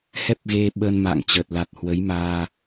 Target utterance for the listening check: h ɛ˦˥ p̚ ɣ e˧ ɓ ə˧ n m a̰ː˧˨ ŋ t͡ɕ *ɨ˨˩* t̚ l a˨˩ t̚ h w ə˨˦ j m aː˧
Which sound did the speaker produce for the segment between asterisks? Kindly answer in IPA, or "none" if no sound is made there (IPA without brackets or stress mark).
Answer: ə˨˩